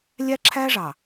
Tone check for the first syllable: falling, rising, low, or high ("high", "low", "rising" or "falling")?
high